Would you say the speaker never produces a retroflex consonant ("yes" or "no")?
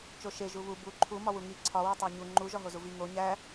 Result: yes